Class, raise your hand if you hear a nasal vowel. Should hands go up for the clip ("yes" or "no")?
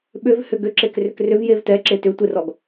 no